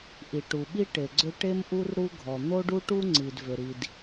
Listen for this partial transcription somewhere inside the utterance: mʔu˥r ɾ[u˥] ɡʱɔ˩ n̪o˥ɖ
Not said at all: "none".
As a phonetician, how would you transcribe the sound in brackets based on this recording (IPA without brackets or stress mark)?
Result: u˥